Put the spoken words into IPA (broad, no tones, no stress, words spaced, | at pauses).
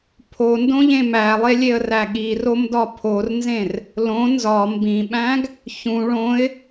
pʰondõ ʎẽmælˠe lʲeə̯ræɠirom dɒpʰornzẽr | lõ nzɒ mbĩɓæ̃ɡ | çũ ɭõɪ̯